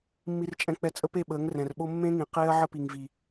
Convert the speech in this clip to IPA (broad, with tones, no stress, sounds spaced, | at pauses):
mː i˧ r t͡ʃʼ ɛ̃˧ k͡p ɛ˧ t͡sʼ ə˦ p e˦˨ ɓ əː˨˦ ŋ r ɛ̃˨ r ɓ o˦ mː ẽ˦ ŋ ĩ˨ q eː˦ ɐ̯ ʕ ə˦ p i˨ ŋ v i˨